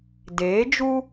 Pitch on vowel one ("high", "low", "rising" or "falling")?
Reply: rising